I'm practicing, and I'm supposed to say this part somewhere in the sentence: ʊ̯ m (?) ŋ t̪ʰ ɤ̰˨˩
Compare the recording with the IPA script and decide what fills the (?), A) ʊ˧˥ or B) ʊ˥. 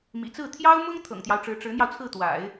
B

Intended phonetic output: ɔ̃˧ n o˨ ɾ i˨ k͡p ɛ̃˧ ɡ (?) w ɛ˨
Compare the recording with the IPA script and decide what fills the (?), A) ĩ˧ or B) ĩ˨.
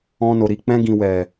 B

